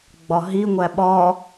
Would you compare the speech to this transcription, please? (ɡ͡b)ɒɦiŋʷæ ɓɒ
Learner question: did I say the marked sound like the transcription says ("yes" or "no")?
yes